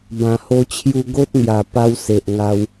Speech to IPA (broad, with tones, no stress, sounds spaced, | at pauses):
b ã˨˩ h o˧ t͡ɕʰ j u˧ ɡ o˦ t̚ ŋ j a˨˩ p a˦ w s e˨ ʔ ŋ a˧ w